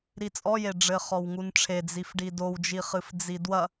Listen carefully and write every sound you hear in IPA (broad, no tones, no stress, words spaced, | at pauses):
ɾit͡sʼɔje ɖ͡ʐɘχɔwŋunʈ͡ʂʰe d͡zifɖidowd͡ʒi χɨfd͡zidwɐ